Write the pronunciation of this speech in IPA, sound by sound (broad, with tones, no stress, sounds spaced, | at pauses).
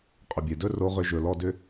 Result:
qʼ ʏ˨ bʲ e˨ d ɵ˦ r o˧ ʁ ʏ˧ ʒ ɵ˨ l ɔ˧ d ʏ˦